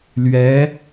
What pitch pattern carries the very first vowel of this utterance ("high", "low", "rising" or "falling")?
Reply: rising